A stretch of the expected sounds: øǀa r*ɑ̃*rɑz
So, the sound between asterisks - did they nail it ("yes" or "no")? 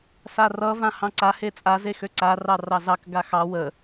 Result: no